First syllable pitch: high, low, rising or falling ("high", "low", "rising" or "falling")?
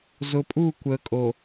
low